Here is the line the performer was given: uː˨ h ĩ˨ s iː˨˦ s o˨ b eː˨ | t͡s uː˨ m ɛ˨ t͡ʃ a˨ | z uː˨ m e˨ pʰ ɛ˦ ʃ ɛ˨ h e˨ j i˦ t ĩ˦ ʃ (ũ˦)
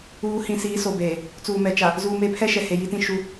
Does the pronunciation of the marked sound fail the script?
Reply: yes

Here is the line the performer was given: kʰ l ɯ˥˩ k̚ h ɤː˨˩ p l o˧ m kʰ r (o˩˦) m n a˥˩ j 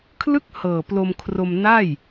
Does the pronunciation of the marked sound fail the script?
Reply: yes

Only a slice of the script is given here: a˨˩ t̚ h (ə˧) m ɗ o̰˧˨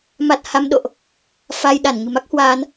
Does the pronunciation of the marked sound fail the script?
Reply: yes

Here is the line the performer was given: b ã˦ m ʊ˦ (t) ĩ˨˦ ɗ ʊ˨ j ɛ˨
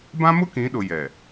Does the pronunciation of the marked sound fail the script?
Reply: yes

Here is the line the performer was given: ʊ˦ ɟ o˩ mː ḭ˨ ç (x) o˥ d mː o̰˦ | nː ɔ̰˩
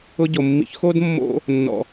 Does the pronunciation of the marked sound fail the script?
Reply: no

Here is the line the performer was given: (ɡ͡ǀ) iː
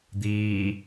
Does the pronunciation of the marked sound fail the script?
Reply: yes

